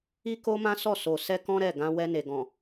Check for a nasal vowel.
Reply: present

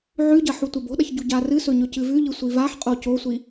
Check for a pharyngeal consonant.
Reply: present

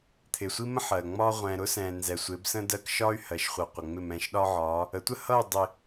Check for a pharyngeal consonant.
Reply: present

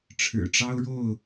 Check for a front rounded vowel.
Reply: absent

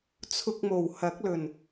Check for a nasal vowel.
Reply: absent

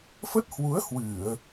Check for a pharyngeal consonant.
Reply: absent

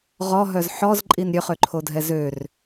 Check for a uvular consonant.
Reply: present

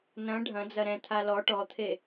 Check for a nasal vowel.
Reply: present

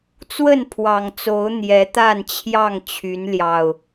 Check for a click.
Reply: absent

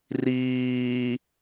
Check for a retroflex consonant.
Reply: absent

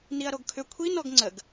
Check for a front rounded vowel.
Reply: present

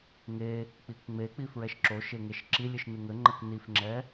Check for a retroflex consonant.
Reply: absent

